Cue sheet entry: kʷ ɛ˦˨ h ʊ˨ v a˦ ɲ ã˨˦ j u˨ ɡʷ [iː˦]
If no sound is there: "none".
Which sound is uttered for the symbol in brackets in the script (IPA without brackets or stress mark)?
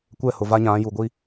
i˦